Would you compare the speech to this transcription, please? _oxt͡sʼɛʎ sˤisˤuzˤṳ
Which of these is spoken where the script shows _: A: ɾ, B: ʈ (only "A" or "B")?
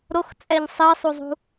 A